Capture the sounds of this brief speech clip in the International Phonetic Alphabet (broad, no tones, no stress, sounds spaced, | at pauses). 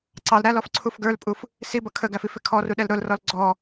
ǀ ɑ l ɾ æ l ɔ f ǀʰ u f ɡ ə˞ l pʼ u f | s i b ʌ kʰ ə ɡ æ f i f ɪ kʰ ɔ r u ɗ ɛ l ɾ ʊ l r ɔ l ɡ͡ǀ ɔ